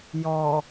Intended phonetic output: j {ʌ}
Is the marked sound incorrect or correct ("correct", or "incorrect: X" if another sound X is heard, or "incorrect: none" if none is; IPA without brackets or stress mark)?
incorrect: ɔ